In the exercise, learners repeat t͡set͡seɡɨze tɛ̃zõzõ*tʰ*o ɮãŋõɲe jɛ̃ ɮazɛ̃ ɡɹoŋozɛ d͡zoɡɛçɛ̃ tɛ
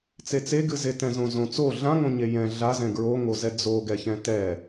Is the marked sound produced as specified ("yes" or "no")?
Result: no